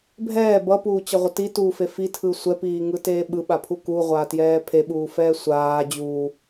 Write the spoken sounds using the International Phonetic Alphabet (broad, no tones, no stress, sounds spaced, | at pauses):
bʱ ɛː b ʌ p uː t͡ɕ ʌ ʁʷ ʌ t i t uː f e f i tʰ ɯ sʷ ɛ p iː ŋ ɯ t eː ɓ ɯ ɓ a pʰ u k u ʁʷ aː t j ɛː pʰ e ɓ uː f ɛː sʷ aː d͡ʑ uː